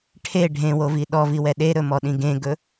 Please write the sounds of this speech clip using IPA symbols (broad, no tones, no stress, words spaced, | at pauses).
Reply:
ʈʰe ɖʱẽwovi ɗɔviwɛ ɗeɾɵmɔɗĩ ɡẽɡɵ